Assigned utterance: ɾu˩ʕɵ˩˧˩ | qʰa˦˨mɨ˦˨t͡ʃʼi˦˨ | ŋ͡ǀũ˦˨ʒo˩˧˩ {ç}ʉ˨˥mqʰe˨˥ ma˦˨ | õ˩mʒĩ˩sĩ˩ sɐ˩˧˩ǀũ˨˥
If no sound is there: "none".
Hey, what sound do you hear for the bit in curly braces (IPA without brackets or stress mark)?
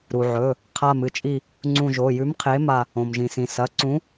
j